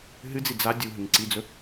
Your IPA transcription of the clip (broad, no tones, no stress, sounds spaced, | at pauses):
ɦ ɨ d͡z i d͡z a dʲ u ɦ ɨ ŋ ǀ i d͡z ɵ